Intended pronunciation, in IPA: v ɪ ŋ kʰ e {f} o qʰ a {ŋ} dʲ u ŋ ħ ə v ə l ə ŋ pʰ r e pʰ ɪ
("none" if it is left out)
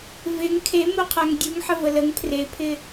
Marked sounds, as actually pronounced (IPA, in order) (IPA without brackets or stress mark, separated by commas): m, ŋ